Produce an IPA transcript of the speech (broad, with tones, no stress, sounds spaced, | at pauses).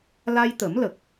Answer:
l a˧ j t̪ ə˨˩˦ m l ə˨˩ k̚